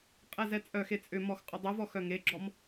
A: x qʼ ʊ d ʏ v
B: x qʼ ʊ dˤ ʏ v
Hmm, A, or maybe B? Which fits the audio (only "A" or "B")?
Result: B